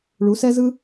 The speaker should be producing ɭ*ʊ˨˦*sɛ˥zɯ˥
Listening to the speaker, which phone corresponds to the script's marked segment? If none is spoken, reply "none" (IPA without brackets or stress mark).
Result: u˨˦